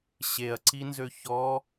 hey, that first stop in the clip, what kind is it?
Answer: click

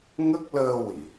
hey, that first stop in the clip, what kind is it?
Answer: plain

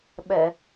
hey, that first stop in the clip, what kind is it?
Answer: implosive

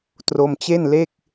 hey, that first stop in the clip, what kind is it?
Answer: plain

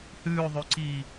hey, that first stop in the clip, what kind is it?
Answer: click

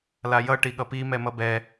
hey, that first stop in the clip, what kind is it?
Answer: plain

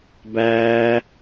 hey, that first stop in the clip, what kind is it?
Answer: plain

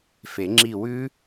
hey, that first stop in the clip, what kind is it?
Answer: click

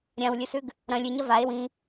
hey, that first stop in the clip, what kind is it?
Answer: plain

